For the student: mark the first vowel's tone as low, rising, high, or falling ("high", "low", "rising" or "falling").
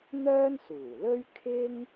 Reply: high